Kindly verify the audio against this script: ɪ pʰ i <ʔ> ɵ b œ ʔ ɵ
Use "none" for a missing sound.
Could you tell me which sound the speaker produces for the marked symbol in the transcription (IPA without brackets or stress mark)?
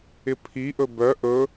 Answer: ʔ